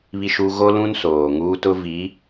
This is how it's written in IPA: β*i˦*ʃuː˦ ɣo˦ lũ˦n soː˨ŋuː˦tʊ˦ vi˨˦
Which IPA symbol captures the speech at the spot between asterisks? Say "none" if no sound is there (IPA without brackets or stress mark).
i˦